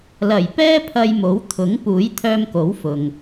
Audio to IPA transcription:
l ɐ˨˩ j p ɛː˥ pʰ ɐ˧ j m o˨˥ w t̪ʰ ʊ˨˥ ŋ p uː˨˥ j t̪ʰ œː˧ m k o˨˥ w f ʊ˧ ŋ

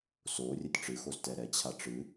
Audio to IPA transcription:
s o rʲ ɘ tʲ ʈ͡ʂ ɨ x o z t ɛ ɾ ɛ t͡ɕʰ a ʈ͡ʂ ɨ

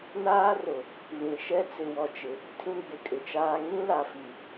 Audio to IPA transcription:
n aː˦ r ʊ˨ | β ĩ˨ ʃ ɛ˦ t͡s ɪ˨ w ɔ˨ t͡ʃ ɪ˨ | tʰ ĩ˦ ɡ͡b ɪ˨ kʼ ɪ˨ t͡ʃ aː˦ ŋ ĩ˦ l a˨ f i˨

